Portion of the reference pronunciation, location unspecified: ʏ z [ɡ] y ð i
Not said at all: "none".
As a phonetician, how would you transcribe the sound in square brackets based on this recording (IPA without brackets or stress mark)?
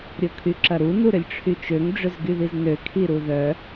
ɡ